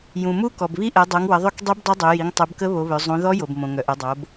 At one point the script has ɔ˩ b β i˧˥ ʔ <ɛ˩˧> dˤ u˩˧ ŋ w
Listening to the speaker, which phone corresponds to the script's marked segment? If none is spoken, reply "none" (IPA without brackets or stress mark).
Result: ɛ˩˧